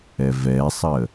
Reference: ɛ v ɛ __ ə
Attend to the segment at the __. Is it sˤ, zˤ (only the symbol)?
sˤ